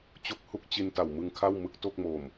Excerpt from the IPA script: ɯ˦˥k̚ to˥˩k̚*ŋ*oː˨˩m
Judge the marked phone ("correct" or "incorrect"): incorrect